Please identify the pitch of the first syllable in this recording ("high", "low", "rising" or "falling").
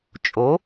rising